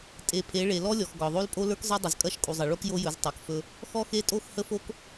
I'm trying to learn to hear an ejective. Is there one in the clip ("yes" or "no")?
yes